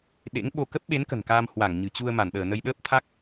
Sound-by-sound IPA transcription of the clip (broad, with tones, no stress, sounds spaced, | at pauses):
ɗ ḛ˧˥ ŋ ɓ o˧ k ə˦˥ p̚ ɓ e˨˦ n k ə̤˨˩ n k aː˧ m h w a˧˩ ŋ ɲ ɨ̤˨˩ t͡ɕ u˧ ə̯ m a˧˩ n ɗ əː˧˩ n ə˧ j ɗ əː˦˥ p̚ t̪ʰ a˦˥ k̚